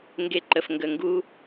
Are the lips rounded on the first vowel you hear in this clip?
no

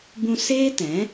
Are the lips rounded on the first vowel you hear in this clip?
yes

